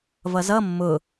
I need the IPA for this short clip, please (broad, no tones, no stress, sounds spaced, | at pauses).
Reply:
v ʌ z ʌ mː ʊ